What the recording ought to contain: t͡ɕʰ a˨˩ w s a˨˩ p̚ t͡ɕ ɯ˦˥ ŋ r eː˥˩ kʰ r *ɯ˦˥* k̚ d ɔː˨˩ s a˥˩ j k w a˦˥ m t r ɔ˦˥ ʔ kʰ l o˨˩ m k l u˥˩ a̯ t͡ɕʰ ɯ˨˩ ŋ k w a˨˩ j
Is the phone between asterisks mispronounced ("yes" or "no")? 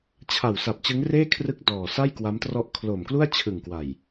no